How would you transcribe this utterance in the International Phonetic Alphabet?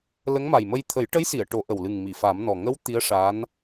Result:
l ə˧˥ ŋ m a˨˩ j m ə˧ j t̪ʰ ə˨˩˦ j ʈ ə˧˥ j s i˨˩˨ ə̯ ʈ o˨˩˦ ʔ ə˨˩ w l ɨ˨˩ ŋ m i˨˩˨ f a˨˩˦ m n ɔ˨˩ ŋ ə˧˥ w t̪ i˧˥ ə̯ ʂ a˧˥ n

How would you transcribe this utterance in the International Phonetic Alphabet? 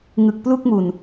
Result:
ŋ ɯ˨˩ k̚ p l u˥˩ k̚ m u˨˩ n

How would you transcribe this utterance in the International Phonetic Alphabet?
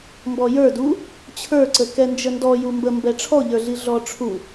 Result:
m b ɔ j ə˞ d u | t͡ɕʰ ə˞ ǀ ə k ɛ n d͡ʒ ə n d ɔ j u m b ə m b ɛ ʈ͡ʂʰ ɔ ʎ ə˞ ɮ i ɮ ɔ ʈ͡ʂʰ u

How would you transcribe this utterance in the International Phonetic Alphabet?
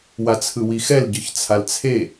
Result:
w a t͡sʰ ɯ w i x ɛ l ɟ ɯ ç t͡sʰ a l t͡sʰ e

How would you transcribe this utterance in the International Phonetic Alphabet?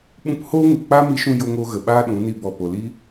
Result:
ɓ ũ˧ p h oː˦ ŋ u˨ k͡p a˦ m i˧ ʃ ũ˧ j o˧ ŋ oː˧ ɣ ə˨ ɓ aː˦ ɗ ũ˨˦ n i˦˨ b ɔ˨ p o˨ l i˦

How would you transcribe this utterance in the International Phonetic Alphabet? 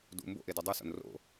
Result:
d ṵ m b o̰ ʔ e d i dˤ u s o̰ n r o̰

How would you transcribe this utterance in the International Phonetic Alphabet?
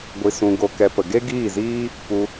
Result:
ɡʷ i˧ s ũ˧ ɡ o˧ k ɛ˧ p ə˨ ɡ e˦ ɡ iː˦˨ z iː˦ | p u˧

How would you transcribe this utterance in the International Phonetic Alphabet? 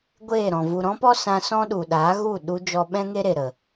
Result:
ɡʷ eː˦˨ ɾ ɔ̃˨ v u˨ ɾ ɔ̃˦ p ɔ˦ s ã˧ s ɔ̃˦ ɗ u˨ ɗ aː˨˦ ɣ u˦˨ ɗ u˧ d͡ʒ ɔ˧ ɓ ɛ̃˦ ŋ e˦ ɾ e˨ ɾ ə˨

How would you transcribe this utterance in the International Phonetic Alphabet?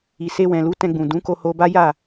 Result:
i˨ s e˧ w ɛ̃˨ l u˨˦ t ɛ̃˧ ɡ͡b ũ˨ d ũ˨˦ k o˧ h o˧ b a˦ j a˦˨

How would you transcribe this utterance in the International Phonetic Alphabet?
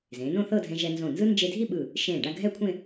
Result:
z ẽː˩˧ n õ˥˧ θ ɤ˥˧ dʱ ɛ̃˧ ʒ ɛ˧ n z õ˧˩ n z ɯ˥ n d͡ʒ e˧ dʱ i˥˧ ɓ ɯ˧˩ | ʃ ẽː˧˩ ɖ a˥˧ ɡʱ ɛ˥˧ kʷʰ ẽ˥˧

